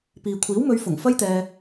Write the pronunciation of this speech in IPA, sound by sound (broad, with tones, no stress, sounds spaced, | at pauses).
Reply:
p iː˨ kʷʰ iː˨˥ w m ɵ˨˧ ɥ f ʊ˨˩ ŋ f ɐ˥ j t̪ ɛː˧